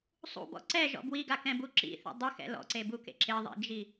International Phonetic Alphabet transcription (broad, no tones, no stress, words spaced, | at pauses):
sˤṵbɔ̰ ǀɛʒɔ̰ bwiɡakɛ̃bu ǁḭθḭ dˤɪxɛ̰ lɔ̰ǀebukḛ ǁɪðˤḭd͡ʒi